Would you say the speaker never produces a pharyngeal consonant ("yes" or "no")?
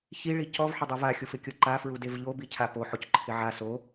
no